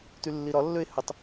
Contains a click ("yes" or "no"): no